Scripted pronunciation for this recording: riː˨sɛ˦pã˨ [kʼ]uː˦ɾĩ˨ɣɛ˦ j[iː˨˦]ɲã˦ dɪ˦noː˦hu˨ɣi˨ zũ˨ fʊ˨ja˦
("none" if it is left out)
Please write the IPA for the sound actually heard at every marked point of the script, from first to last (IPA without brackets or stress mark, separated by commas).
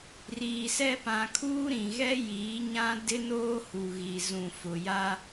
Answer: kʰ, iː˨˦